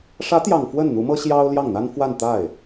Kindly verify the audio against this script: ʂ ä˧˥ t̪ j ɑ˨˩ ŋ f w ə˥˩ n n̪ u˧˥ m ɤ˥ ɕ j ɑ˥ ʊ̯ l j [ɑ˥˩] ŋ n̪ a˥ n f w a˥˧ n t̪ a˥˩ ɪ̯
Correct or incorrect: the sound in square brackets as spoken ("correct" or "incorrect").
correct